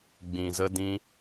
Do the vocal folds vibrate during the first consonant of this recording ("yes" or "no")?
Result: yes